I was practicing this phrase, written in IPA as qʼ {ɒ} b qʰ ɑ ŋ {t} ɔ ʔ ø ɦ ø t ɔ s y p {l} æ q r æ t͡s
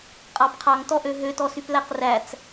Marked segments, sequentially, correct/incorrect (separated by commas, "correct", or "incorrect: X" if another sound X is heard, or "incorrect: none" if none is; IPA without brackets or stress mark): incorrect: ɑ, correct, correct